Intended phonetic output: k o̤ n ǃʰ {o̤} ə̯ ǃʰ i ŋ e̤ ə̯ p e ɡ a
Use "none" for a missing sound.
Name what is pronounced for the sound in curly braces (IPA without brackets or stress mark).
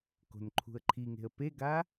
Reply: ṳ